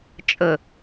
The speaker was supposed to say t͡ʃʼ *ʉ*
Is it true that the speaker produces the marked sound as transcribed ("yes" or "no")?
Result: no